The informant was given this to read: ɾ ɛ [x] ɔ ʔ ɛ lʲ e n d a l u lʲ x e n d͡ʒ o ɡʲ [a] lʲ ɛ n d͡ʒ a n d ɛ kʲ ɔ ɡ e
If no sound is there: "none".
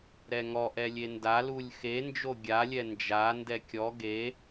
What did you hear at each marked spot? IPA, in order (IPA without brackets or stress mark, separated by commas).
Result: ŋ, a